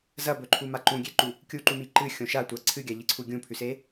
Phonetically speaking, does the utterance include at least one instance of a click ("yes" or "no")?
yes